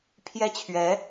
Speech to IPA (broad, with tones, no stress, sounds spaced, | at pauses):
pʰ j ɛ˥ t͡ɕʰ ɥ ɛ˧˥